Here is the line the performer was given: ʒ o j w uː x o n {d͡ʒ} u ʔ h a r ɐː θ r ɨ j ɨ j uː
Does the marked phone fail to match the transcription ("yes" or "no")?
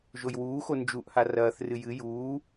no